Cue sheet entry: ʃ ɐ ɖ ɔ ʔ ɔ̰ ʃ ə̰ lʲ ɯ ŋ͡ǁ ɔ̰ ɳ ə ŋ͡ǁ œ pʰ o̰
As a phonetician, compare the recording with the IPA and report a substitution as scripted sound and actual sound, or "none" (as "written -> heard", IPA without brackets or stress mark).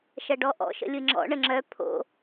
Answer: none